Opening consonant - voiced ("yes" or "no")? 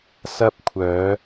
no